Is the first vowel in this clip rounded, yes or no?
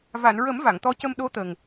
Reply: no